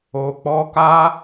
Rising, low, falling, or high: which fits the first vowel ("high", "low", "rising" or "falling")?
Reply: low